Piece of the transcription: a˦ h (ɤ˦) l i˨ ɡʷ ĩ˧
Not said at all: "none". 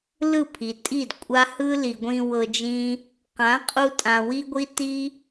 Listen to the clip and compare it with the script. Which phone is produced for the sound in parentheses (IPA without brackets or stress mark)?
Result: ɯ˦